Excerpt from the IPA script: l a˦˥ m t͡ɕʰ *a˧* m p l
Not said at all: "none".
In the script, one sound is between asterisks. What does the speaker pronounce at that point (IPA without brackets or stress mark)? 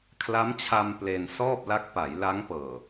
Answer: a˧